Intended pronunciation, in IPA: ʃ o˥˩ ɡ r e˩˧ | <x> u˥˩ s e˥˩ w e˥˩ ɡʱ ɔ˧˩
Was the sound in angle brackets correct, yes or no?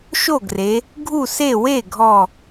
no